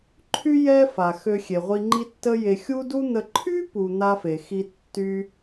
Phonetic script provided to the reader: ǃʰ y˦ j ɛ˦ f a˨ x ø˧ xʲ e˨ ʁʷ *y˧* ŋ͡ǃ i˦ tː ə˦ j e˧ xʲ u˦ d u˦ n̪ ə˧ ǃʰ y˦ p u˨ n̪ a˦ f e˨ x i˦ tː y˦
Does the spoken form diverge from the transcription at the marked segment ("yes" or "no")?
yes